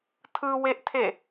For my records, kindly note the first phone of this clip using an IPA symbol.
tʰ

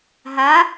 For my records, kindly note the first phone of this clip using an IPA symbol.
ɦ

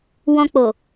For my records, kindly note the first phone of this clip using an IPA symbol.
w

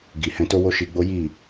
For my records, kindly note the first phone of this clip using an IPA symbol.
ɡ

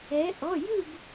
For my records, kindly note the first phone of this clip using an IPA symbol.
ɛ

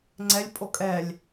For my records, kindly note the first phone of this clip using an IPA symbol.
ŋ͡ǀ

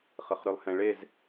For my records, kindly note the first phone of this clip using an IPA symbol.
χ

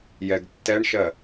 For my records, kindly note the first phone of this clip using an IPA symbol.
j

